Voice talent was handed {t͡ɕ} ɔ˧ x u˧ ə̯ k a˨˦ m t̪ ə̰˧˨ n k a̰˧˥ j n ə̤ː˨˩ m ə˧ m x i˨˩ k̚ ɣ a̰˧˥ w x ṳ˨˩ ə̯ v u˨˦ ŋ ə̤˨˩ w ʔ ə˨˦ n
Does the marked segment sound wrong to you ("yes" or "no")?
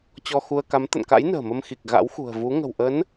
no